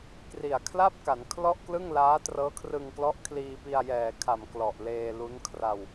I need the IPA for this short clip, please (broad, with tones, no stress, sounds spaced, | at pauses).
k r i˨˩ a̯ kʰ l a˥˩ p̚ k a˩˦ n kʰ l ɔ˥˩ ʔ k l ɯ˥˩ ŋ l aː˦˥ t r ɤː˦˥ kʰ r ɯ˧ ŋ k l ɔ˦˥ ʔ kʰ l iː˧ p i˧ a̯ j ɛː˨˩ kʰ a˨˩ m k l ɔ˨˩ ʔ l eː˧ l u˦˥ n kʰ r a˧ w